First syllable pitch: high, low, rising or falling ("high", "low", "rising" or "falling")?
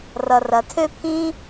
low